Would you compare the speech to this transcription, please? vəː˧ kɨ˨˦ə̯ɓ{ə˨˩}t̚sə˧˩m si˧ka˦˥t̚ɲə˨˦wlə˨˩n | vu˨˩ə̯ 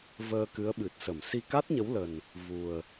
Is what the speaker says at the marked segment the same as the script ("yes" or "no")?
no